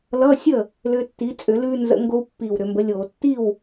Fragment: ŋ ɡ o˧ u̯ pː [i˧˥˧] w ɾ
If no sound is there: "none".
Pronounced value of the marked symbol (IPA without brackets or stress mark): i˨˩